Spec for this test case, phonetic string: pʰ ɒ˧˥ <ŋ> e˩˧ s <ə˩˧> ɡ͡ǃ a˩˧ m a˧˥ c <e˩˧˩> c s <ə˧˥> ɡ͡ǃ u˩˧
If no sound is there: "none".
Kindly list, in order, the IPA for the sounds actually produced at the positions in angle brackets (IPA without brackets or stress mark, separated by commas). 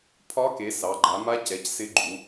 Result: k, ɑ˩˧, ɛ˩˧˩, ɪ˧˥